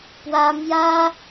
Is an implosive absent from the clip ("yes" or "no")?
yes